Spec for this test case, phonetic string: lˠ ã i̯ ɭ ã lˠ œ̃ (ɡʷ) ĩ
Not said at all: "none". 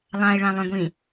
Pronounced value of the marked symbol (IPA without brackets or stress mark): ɡʷ